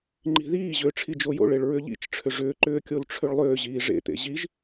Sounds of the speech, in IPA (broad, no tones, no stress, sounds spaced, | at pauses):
ŋ͡ǃ i̤ ð iː ʑ ʏː ʈ͡ʂʰ i d͡ʒ o j o̰ ɭ e ɭ ɹ ʏ ʎ ḭ t͡ʃ ʈ͡ʂʰ ʏ ʐ ʏː ǃ ʏː kʲ o l ʈ͡ʂʰ ʏ ɭ lˠ ʏː ʑ iː ʐ ḛ t̪ ḛ ʑ i ʒ